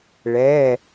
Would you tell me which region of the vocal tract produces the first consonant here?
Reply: retroflex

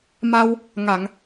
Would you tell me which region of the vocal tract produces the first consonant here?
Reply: lips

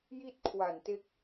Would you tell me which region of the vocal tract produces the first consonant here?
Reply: palate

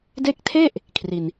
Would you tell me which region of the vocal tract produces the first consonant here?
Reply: tongue tip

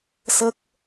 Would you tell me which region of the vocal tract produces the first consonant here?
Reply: tongue tip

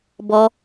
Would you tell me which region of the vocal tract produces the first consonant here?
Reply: lips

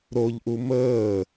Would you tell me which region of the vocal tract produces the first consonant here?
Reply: tongue tip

